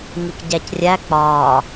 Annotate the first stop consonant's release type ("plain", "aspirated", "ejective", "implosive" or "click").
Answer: plain